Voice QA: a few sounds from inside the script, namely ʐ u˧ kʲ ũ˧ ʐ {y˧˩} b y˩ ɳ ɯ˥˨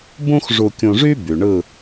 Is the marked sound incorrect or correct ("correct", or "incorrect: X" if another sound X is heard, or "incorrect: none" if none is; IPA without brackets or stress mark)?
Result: incorrect: y˥